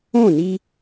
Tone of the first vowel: falling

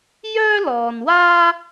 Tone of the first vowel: high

